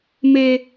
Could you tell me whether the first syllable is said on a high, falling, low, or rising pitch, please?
low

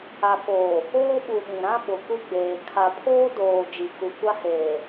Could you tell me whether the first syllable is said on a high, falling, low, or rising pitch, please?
low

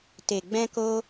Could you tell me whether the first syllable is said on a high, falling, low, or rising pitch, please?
low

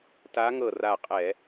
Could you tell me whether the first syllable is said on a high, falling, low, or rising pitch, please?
rising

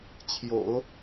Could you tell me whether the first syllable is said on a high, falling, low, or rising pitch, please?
low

